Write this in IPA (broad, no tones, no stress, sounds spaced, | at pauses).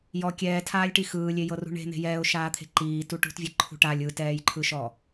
j ɔ kʲ ɛː tʰ aː lʲ ʈ i x ɯː lʲ e j ɤ r ṳ ɳ e̤ n̪ e̤ j ɛː ʊ̯ ʃ aː t̪ʰ e̤ ǃ iː t u ʈ ṳ t vʲ ɛ ǃʰ ṳ ʈ a lʲ ɯ t ɛː j ǃʰ ɯ ʃ ɔ